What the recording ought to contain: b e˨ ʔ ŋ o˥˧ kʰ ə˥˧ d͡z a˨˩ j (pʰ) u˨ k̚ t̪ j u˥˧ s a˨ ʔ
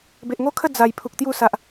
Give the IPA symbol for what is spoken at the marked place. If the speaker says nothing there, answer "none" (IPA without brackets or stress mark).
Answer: pʰ